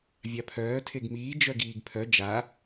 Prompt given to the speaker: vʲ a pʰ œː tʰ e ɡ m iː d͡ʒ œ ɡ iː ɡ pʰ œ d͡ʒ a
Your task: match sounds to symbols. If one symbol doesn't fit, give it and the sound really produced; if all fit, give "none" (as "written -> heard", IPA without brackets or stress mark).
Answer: none